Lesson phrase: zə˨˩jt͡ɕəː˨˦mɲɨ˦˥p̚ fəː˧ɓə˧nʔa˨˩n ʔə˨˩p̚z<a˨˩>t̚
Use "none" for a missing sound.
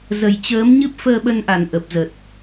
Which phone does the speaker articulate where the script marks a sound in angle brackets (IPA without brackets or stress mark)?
ə˨˩